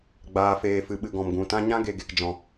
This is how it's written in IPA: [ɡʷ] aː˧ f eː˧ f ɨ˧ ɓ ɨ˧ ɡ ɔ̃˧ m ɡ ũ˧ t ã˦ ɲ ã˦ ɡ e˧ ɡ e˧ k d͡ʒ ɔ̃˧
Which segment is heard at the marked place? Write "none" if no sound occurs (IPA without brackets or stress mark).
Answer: ɡ͡b